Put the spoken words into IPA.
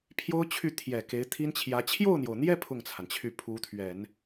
pʰ j o˥ ʊ̯ t͡ɕʰ y˥˩ t̪ʰ j ɛ˨˩ k e˧˥ ɪ̯ t̪ʰ i˥ n t͡ɕʰ j ä˧˥ t͡ɕʰ j o˥˩ ʊ̯ n̪ j o˩ ʊ̯ n̪ j ɛ˥˧ pʰ ʊ˥˩ ŋ t͡sʰ a˩ n t͡ɕʰ y˥˩ pʰ u˧˥ t̪ʰ ɥ ɛ˨˩˦ n

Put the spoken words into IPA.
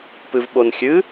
p ɨ v ɓ o n xʲ ɨ

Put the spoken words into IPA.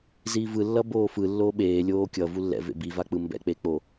z iː v ɯ lː ʌ b oː f ɯ lː oː ɓ eː lʲ oː kʲ ʌ v u lː ɛ̰ v ḛ b i v a k͡p ɯ m b ɛ̰ k͡p e k͡p o

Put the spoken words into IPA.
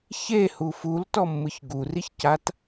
ç e h u f u l t ɔ mː ɯ ç ɡ u r i ç c a t

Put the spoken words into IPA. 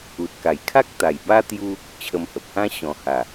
u˨ t̚ k a˨˩ j kʰ a˦ k̚ t̪ a˨˩ j b a˦ t̪ j u˦ | t͡ɕʰ ə˧ m h ə˨ p̚ h ã˦ ɕ ɔ̃˨˩ h a˨˩

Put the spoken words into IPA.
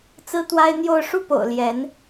t͡s ɹ̩˥ t̪ w a˥ ɪ̯ n̪ j o˥˧ ʊ̯ ʂ u˥˩ p o̰˨˩ ʊ̯ l j ɛ˧˥ n

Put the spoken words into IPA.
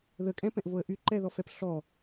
ð ə kʼ ɛ̃ p ɛ̃ ʔ v o ə̯ ʔ y ǃ ɛ ð ɔ f ɛ p ɬ ɔ

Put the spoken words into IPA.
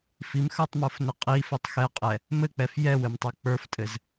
f i m x ə˞ tˤ m ə˞ f n ɘ qʼ i f ɘ tˤ x ɛ qʼ ɛ | m ɘ k͡p ɛ f j ɛ w ɘ m tˤ ə˞ k͡p ə˞ f tʼ ɘ z

